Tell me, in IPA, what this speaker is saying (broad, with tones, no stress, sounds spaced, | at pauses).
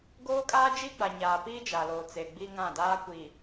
ɡ oː˦ kʼ aː˦ d͡ʒ i˦ ɡ͡b a˨ ɲ aː˨ p iː˦ d͡ʒ a˨ l oː˨ t͡s e˨ ɡ͡b i˦ ŋ ã˦˨ d aː˦ kʷ iː˨